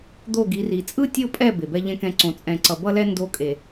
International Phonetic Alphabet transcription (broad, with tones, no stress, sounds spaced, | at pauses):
d̪ o˦˨ ɡ i˨˦ r i˨ t͡sʼ ɯ˦ tʲ o˦˨ pʼ ɛ˦˨ b e˨ b ɛ˦ ʎ ɛ̃˦ k ɛ̃˦ ǀ õ˨ t͡sʼ ɛ̃˨ ǀ ʌ˨ b ʌ˦ l ɛ˦ n d o˦˨ kʼ e˨